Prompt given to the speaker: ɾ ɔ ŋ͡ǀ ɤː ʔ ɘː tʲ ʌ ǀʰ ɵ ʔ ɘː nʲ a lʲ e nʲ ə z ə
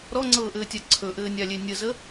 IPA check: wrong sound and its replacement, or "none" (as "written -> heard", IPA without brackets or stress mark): ʌ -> a